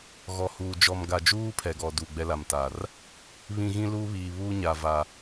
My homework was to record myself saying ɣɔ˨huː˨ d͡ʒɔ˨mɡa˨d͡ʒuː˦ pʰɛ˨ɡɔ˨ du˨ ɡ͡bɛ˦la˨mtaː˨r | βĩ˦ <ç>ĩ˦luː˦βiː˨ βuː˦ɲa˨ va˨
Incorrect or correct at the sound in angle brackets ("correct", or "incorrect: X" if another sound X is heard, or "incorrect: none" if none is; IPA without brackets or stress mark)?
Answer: incorrect: ɣ